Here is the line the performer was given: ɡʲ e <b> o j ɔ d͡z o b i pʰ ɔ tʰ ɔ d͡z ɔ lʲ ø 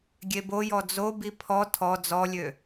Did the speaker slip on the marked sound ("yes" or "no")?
no